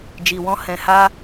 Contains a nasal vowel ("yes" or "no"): yes